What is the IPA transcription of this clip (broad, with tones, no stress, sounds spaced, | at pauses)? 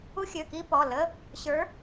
u˦˥ xʲ ø˩˧˩ k i˦˥ p ɔ˩˧˩ l ə˧˥˧ | ɕ ə˞˨˦